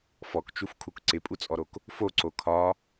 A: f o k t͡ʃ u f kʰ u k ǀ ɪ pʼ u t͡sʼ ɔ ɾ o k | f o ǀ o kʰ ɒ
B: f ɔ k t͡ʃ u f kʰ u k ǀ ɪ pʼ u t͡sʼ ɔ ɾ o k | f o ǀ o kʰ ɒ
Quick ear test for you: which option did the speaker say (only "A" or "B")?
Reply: B